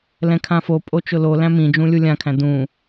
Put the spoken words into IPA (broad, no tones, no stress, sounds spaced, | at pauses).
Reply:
l ɛ̃ kʰ ã f o pʼ o t͡ʃ ʊ l o l æ̃ m ĩ d͡ʒ ũ lʲ u lʲ ã kʰ æ̃ d ũ